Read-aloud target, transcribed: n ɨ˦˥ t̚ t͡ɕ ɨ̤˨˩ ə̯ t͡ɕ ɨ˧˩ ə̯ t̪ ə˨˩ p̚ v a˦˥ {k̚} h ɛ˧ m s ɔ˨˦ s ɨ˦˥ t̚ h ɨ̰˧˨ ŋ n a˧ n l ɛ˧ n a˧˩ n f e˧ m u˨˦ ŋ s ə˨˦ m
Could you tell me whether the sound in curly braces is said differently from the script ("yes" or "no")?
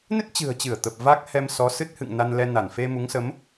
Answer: no